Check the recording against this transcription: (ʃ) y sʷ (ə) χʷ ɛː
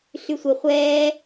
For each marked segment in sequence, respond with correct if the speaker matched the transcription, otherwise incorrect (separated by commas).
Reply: incorrect, correct